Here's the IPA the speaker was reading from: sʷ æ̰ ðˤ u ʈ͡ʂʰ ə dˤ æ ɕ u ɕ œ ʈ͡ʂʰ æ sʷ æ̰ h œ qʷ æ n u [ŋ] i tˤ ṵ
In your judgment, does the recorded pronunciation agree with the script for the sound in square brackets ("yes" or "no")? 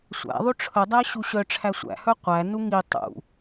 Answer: yes